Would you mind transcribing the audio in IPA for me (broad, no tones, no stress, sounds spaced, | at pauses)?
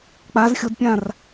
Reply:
k͡p a z xʲ o d pʲ ã r